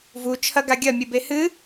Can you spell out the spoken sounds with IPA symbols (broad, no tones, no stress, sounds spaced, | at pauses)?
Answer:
v u t͡ʃʰ ɐ ɡ a ɡʲ ɐ mʲ ɨ b e h ɨ